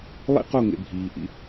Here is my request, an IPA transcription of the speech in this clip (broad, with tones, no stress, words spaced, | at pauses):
lˠḭ˦qo˦˨ŋḛ˨ bʱiː˨ʔḭ˦